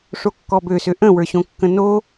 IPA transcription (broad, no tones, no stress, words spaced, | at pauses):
ʂokːɔbøsø ʔə̃wə˞ɕõkːə̃ no